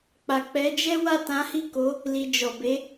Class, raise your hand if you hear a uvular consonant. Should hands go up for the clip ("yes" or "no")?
no